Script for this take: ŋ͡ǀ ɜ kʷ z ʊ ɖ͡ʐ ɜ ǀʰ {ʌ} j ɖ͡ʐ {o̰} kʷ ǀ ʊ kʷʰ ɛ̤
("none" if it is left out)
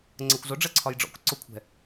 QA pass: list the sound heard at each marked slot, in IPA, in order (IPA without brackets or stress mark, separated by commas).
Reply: ɒ, ɔ̰